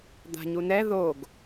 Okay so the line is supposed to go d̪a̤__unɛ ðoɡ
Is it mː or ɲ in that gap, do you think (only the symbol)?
ɲ